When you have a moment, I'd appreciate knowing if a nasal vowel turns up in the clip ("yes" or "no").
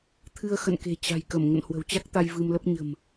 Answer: no